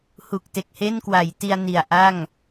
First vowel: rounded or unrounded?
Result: rounded